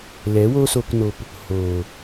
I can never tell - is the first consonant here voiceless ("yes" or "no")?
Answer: no